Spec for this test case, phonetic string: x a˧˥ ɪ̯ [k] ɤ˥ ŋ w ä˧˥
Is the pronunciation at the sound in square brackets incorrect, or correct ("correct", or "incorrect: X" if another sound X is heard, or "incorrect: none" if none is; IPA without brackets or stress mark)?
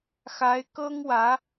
correct